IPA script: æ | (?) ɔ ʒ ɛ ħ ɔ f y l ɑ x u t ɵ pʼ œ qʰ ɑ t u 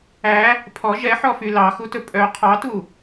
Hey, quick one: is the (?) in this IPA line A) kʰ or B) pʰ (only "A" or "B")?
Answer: B